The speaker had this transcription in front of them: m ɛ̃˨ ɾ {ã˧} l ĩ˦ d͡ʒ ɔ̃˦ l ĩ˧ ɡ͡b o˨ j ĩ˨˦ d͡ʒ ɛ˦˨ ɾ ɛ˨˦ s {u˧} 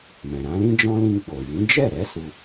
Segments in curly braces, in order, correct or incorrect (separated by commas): incorrect, correct